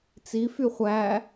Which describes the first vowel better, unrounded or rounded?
unrounded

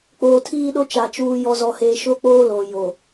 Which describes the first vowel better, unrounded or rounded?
rounded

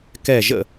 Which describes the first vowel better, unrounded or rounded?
unrounded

